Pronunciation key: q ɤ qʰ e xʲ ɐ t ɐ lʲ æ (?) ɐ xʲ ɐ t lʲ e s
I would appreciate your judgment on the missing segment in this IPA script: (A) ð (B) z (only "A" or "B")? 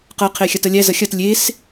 B